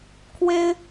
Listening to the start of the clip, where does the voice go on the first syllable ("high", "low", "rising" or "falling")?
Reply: high